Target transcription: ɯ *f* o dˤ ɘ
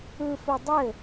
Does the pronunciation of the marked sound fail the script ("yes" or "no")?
no